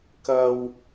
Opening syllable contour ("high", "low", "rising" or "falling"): high